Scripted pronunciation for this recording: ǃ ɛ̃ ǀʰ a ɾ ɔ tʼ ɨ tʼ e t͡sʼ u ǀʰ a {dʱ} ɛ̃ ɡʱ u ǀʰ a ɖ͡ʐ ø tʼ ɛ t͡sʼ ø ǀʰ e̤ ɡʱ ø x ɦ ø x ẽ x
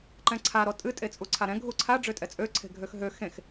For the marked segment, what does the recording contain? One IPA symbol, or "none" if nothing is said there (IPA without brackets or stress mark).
ɾ